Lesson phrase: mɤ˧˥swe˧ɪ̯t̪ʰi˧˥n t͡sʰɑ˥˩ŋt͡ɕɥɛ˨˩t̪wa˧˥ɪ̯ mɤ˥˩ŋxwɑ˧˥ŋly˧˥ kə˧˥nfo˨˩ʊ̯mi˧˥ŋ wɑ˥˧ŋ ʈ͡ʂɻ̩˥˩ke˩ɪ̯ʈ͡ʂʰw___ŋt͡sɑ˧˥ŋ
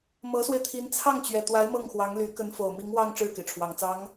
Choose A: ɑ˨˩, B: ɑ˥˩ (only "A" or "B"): A